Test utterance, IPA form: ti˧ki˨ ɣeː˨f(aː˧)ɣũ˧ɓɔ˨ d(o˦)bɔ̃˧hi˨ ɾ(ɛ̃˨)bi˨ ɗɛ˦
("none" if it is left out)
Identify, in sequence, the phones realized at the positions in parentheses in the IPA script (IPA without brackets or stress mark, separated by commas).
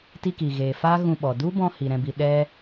aː˦, u˦, ɛ̃˨